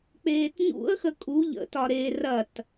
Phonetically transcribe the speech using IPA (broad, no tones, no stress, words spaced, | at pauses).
k͡peːtɲṵə̯xə kʼu ʎə̰tɒ ɾe rɐt